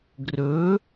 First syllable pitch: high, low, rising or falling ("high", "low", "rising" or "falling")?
rising